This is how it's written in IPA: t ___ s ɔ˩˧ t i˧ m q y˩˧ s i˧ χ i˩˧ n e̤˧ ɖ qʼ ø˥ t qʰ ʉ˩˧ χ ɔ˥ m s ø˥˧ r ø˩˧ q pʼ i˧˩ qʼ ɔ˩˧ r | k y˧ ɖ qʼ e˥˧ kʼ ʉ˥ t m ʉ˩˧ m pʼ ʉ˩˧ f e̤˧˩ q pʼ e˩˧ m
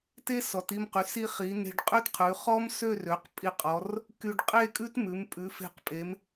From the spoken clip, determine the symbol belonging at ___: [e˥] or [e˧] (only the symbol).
e˥